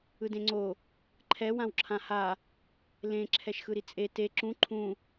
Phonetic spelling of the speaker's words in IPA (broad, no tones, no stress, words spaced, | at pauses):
ɯdẽŋ͡ǀo | ǃʰɛ wãwǁʰãha | lẽ ǁʰɛʃxɯɾit͡sʼe te ǁũ ǃʰũ